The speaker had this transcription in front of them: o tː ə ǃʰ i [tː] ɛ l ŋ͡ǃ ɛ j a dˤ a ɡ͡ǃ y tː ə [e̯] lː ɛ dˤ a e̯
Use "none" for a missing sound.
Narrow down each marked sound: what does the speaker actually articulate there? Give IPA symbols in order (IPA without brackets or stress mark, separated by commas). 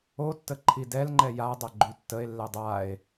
d, e̯